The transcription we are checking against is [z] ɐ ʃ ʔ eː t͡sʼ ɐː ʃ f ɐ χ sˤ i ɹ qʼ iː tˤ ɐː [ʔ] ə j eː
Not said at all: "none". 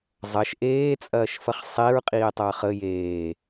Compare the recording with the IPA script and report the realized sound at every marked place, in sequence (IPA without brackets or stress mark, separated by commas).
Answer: zˤ, χ